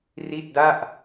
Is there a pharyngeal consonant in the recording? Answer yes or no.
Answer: no